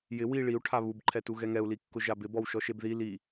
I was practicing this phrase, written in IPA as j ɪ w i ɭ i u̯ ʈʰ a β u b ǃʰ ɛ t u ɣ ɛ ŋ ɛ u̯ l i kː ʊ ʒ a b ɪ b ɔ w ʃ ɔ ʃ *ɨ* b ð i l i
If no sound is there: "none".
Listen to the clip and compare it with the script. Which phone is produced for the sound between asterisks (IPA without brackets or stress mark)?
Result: e